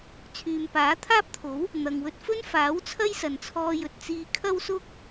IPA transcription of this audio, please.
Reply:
t͡sʰ yː˨ m p aː˨˥ t̪ʰ aː˥ p̚ t̪ʰ o˨˥ w | n̪ ɐ˨ ŋ w ɵ˧ t̚ f ɵ˥ n f aː˨˥ w t͡sʰ ɐ˥ j s ɐ˨ n t͡sʰ ɔː˧ j ɵ˨ t̚ t͡s iː˧ kʰ ɐ˥ w s ʊ˥ k̚

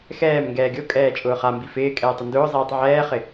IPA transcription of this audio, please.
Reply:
x ɛː m ŋ ɡ ɛː ɡʲ o kʼ ɛː t͡ʃʼ ʊː χ a m b i f ɪː kʼ ɛː tˤ ʊ n d ʊː zˤ iː tˤ ʕ ɛː χ ɪ

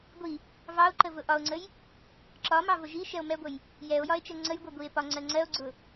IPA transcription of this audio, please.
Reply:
ɡʷ i | v ɑ o̯ ǃ ə v ʊ ʔ ɒ o̯ ŋ͡ǀ ə j | ǁ ɒ m ɑ v ʊ ʒ i ʃ ɛ o̯ m ɛ ɡʷ ə j | j ɛ o̯ j ɒ e̯ t͡ʃ ɛ ŋ͡ǀ ə j ɡʷ ɛ ɡʷ i e̯ p ɒ ŋ͡ǀ ɜ ŋ͡ǀ ɜ o̯ ɡ͡ǀ ʊ

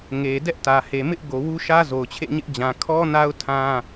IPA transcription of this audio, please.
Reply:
ŋ e˨ d ɛ˦ ʔ t ä˨ h e˨ m ɪ˦ ʔ ɡ o˨ w u˦ ʃ ä˦ z o˨ ʊ̯ t͡ɕʰ ḛ˦˨ ɲ ɪ˦ ʔ d͡ʑ ã˨ kʰ ɔ˦ n a˦ ʊ̯ tʰ ã˦

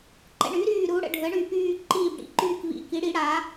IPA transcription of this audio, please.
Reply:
ǃ ɛ̰˨˩ ɳ y˩˧ ɾ yː˨˩ ɾ u˩˧ ɽ ə̰˨˩ ɖʱ ə˩˧ ɳ y˨˩ p yː˨˩ ǃ iː˨˩ b ɽ ḭ˩˧ ǃ yː˨˩ k v ḭ˨˩ k i˩˧ ɽ i˩˧ ɽ aː˩˧

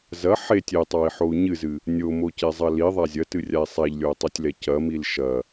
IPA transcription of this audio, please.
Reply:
z ɐ ħ e tʲ e tˤ a i̯ ħ o u̯ ɲ ɨ z ɨ | nʲ o m o c e zˤ ɐ l i ðˤ a zʲ ɐ t ɨ rʲ a i̯ sˤ a ʎ lʲ o u̯ tˤ o tʲ l ɛ c ɐ m i l ʃ ɐ

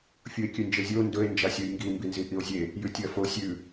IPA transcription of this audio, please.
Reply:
fʲ u e̯ kʲ ʉ n d͡ʒ e zʲ o n d ɵ e̯ n d͡ʒ a sʲ u j ŋ ɡ i m b i n z i ʔ i o̯ zʲ e | j ʉ tʲ ɐ f o sʲ ʉ

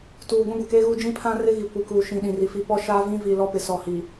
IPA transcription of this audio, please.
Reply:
t uː˨ ɡʷ ĩ˦ ɡʷ ɪ˨ k eː˦ ɣ uː˦ d͡ʒ ĩ˦ pʰ ã˦ r ɪ˦ ɣ i˨ kʷ i˨ k uː˨ ʃ ĩ˨ ɗ ĩ˨ r i˨ f i˦ p ɔ˦ ʃ a˦ v ĩ˦ v i˨ l ɔ˦ p ɪ˨ s ɔ˨ h i˨

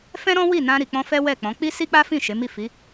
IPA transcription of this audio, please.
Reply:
f ɛ̃˦ ɾ ɔ̃˦ w i˦˨ n ã˧ ɾ i˨ k͡p ɔ̃˧ f ɛ˦ w ɛ˦˨ k͡p ɔ̃˨˦ k͡p i˦ s i˦ k͡p a˦ f ĩ˦˨ ʃ e˨˦ m i˦˨ f i˨˦

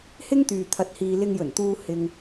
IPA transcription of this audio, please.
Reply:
h ɪ˥ ŋ t̪ yː˨ t̪ʰ ɐ˧ t̚ h iː˧ l ɪ˧ ŋ j ɵ˨˩ n t̪ uː˧ h ɪ˨ ŋ

